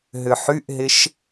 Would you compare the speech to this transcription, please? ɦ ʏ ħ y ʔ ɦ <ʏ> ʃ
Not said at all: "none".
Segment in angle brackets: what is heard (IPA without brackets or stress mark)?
ɪ